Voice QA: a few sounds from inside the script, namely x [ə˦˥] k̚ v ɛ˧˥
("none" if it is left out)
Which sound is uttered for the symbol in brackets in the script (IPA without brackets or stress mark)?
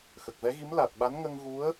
ə˨˩